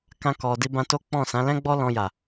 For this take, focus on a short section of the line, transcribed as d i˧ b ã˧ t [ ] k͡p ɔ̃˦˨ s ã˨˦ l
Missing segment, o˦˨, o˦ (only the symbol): o˦